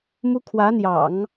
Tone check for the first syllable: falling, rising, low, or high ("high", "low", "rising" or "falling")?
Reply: high